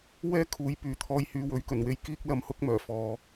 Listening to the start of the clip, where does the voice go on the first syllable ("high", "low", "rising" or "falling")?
high